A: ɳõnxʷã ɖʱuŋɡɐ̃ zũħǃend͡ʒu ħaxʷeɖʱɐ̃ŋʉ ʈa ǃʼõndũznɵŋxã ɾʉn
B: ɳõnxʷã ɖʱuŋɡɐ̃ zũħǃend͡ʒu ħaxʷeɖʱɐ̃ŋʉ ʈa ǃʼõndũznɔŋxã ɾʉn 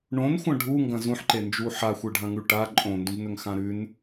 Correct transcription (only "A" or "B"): A